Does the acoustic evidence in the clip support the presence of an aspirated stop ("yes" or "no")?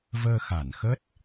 no